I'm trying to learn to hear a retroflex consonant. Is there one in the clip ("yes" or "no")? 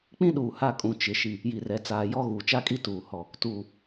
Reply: no